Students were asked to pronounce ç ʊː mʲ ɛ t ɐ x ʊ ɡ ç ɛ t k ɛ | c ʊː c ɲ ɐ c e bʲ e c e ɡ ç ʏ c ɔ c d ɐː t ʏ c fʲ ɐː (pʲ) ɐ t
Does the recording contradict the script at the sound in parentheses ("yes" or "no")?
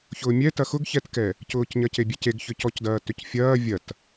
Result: yes